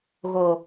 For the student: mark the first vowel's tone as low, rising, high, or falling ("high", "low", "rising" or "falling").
low